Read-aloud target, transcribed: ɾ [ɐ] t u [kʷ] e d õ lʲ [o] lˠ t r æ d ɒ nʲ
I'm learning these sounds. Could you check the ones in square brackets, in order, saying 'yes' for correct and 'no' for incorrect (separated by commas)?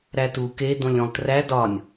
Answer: no, no, no